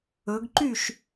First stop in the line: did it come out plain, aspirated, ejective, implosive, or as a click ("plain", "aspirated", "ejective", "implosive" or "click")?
plain